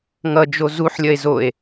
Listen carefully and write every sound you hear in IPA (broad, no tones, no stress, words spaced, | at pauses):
ŋʌd͡ʒo zuħlʲʌe̯ zoe̯